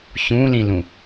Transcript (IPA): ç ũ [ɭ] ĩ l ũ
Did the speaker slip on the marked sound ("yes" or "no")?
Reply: yes